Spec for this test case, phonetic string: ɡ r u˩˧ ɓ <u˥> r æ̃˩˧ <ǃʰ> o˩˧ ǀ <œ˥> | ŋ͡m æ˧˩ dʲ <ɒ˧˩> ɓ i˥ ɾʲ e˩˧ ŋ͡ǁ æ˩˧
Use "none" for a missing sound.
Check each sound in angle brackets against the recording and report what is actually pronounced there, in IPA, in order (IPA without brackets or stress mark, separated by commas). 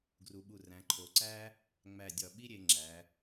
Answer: u˧˩, ǃʰ, æ˥, ɒ˧˩